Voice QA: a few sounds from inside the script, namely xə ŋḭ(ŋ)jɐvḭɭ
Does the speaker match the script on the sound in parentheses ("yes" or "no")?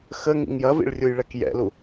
yes